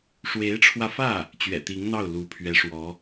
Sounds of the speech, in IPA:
ʂwe˧˥ɪ̯ʈ͡ʂʰwä˧fä˥˩ | t͡ɕɥɛ̰˨˩t̪i˧˥ŋn̪ɑ˥˩ʊ̯ lu˧˥pʰɥɛ˧˥ʂwɔ˧˥

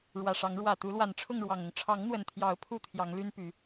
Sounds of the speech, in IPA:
ɻwä˨˩ʂɑ˨˦ŋ ɻwä˨˩ t̪u˨˦lwa˨˩nʈ͡ʂʰʊ˥˨ŋ ɻwɑ˨˩ŋʊ˦ŋ ʈ͡ʂʰɑ˨˦ŋn̪wə˨˩nt̪ʰjɑ˨˦ʊ̯ pʰu˥˨t̪ʰjɑ˨˦ŋly˦n py˨˦

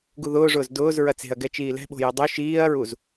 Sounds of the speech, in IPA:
ɡuðʊːʐʊːz dʊːz ɹɐt͡se̤ɐ̯ ɡɛt͡ʃiːlɛ̤ɓo̤ jʊdˤø ʃiːɐ̯ɹuz

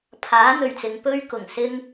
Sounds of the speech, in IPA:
pʰaː˨˥n̪ɵ˨˩ɥt͡sɪ˨ŋ pɵ˥ɥkʊ˨˩ŋsɪ˥ŋ

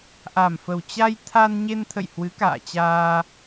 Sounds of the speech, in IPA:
ʔa˨˩mfə˨˩wt͡ɕa˧j t̪ʰa˧nɲe˧nt̪ʰə̰˧˨j hwɨ˨˦ka̰ː˧˨t͡ɕaː˧

